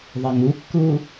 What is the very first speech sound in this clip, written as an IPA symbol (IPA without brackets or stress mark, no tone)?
ðˤ